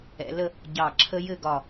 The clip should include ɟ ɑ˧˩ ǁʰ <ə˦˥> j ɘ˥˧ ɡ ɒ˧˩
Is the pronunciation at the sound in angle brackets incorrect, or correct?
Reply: correct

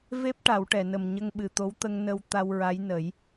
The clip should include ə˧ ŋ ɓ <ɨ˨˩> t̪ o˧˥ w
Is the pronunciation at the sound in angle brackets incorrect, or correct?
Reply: correct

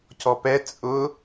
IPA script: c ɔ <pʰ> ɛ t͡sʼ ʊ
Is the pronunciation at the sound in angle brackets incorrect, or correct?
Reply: incorrect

